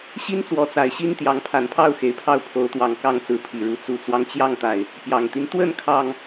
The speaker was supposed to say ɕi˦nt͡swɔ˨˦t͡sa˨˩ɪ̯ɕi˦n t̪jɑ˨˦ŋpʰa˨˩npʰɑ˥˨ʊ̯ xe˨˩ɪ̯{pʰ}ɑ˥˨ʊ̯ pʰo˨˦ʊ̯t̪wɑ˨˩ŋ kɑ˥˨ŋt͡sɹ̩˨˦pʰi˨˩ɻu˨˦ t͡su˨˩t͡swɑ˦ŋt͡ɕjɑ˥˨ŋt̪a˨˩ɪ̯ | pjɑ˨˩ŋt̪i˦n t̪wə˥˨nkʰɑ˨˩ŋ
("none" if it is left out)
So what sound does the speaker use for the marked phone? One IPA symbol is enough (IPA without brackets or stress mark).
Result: pʰ